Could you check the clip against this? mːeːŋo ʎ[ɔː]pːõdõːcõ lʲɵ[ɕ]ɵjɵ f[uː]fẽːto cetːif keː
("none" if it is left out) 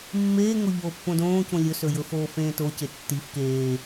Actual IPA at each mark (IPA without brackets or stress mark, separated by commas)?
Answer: oː, s, oː